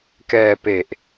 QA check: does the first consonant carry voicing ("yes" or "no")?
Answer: no